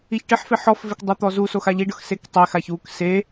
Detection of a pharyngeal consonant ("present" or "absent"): present